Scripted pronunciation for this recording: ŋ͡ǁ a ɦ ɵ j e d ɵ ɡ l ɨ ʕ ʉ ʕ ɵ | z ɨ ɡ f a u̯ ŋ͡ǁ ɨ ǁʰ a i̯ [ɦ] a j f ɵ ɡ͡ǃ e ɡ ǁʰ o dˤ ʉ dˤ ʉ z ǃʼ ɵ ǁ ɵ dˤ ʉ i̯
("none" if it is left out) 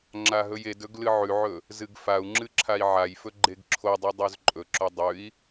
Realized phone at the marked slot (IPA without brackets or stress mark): ʕ